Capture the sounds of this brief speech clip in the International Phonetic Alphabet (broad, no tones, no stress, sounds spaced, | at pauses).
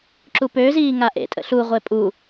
ǁ u p ø z iː ŋ a ʔ ḛ tʼ ə̰ ɬ u ʁʷ e pʼ u